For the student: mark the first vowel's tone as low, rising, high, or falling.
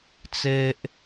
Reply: high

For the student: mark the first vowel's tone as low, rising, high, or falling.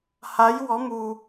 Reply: rising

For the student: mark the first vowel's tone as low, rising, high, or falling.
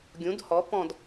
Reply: rising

